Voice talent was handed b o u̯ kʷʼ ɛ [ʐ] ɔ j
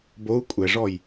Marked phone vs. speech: correct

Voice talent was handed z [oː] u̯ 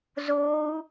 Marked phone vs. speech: correct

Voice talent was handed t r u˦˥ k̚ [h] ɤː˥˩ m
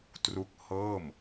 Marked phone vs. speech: correct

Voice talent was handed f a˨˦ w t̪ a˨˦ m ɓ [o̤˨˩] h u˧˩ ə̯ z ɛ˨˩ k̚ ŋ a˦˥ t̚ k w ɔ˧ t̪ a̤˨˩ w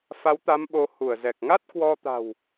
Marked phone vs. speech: incorrect: o˨˦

